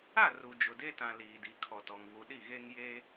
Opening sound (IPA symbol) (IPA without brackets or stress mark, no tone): a